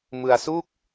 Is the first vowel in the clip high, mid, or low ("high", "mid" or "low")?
high